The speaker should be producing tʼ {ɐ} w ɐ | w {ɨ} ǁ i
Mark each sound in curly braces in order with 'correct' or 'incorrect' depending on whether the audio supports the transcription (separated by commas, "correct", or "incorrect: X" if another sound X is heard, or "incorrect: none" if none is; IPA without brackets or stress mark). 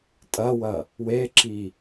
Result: correct, incorrect: e